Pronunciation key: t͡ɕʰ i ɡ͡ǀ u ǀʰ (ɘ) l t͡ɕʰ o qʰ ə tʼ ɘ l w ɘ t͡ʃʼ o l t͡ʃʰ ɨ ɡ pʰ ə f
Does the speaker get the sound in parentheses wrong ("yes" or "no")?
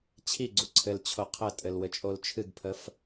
no